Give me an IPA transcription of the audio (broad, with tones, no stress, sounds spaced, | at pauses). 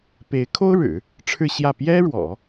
p e˧˥ ɪ̯ kʰ o˥ ʊ̯ ɻ ɻ̩˨˩˦ | ʈ͡ʂʰ ɻ̩˥˧ ɕ j ä˥˩ p j ɛ˥ ɻ w ɔ̰˨˩˦